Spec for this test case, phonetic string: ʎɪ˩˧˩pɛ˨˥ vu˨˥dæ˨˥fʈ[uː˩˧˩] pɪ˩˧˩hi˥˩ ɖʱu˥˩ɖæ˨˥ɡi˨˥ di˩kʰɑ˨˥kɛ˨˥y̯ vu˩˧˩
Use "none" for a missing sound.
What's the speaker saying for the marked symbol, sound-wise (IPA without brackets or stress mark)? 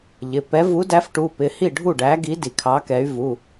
u˩˧˩